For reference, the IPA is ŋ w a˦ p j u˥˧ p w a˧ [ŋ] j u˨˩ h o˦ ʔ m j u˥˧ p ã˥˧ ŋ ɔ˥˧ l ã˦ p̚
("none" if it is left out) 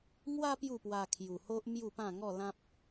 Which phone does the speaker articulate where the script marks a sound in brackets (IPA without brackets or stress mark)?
kʰ